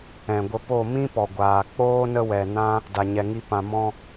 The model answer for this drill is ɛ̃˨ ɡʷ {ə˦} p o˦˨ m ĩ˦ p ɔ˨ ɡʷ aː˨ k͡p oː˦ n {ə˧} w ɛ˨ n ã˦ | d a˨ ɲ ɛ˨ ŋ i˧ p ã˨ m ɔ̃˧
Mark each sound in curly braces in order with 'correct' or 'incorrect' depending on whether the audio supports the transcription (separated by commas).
incorrect, incorrect